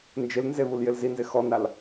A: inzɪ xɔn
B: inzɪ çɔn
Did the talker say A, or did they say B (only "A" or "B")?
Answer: A